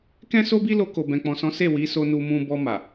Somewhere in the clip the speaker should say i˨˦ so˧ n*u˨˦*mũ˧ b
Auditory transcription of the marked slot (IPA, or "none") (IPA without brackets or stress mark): u˧